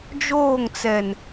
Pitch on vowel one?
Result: falling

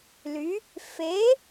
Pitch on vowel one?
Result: rising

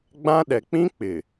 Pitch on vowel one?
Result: high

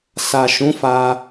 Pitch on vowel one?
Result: low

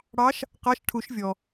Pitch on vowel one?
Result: rising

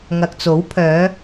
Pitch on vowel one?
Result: low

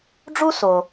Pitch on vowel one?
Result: high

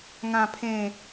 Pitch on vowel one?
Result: low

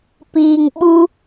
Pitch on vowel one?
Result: low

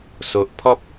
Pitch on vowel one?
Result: low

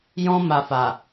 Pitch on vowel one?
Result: high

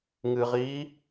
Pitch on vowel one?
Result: low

